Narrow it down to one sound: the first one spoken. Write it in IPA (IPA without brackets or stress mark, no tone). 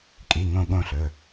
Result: kʼ